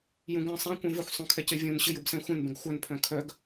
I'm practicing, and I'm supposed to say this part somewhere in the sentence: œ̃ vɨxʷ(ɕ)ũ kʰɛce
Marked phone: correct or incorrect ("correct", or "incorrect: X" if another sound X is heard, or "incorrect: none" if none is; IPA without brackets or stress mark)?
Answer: incorrect: sˤ